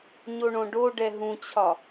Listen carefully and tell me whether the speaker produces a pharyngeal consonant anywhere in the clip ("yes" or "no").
no